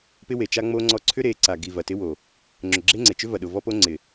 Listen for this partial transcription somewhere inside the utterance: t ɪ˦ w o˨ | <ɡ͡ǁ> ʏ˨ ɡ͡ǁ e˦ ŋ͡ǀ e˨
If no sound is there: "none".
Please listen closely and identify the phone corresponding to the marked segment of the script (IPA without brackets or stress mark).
ŋ͡ǁ